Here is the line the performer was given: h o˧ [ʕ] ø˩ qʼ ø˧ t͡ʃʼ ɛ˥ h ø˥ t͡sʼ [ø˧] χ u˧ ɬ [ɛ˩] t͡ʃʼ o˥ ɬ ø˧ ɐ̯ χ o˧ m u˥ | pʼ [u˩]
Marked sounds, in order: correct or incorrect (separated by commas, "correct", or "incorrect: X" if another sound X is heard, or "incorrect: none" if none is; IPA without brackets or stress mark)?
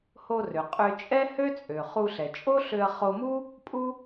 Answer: incorrect: r, incorrect: ø˩, correct, incorrect: u˥